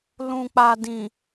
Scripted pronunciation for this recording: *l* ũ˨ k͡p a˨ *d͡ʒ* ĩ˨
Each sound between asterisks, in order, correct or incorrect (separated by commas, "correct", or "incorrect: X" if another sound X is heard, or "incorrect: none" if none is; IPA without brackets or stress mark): correct, incorrect: d